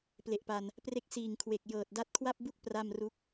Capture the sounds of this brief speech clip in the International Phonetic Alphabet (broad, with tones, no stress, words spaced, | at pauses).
ple˨˩ʔpa˧n | pre˥˩k̚ siː˨˩ŋkʰwe˨˩k̚ jɤː˨˩t̚da˦˥t̚kʰwa˥˩p̚bu˥˩k̚ pra˥˩mru˥˩k̚